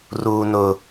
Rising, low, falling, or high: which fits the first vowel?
low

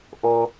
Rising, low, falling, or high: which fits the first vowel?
high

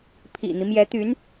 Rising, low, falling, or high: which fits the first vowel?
low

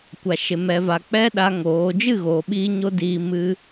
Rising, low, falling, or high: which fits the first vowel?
low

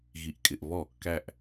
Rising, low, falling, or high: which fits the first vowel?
low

